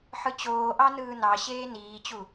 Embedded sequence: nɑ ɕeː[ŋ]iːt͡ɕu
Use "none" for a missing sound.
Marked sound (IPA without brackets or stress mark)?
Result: n